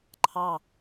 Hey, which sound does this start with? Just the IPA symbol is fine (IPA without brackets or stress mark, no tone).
ǃʰ